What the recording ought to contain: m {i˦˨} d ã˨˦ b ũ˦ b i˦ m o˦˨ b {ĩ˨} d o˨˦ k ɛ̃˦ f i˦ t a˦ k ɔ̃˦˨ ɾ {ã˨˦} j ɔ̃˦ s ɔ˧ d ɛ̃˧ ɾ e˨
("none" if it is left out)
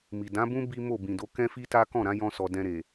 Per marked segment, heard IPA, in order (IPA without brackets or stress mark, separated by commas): i˨, ĩ˨, ã˨˦